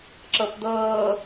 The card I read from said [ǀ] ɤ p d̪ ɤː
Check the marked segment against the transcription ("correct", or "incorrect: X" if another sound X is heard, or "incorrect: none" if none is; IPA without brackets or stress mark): incorrect: ǁ